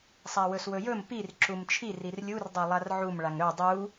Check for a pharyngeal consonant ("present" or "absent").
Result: present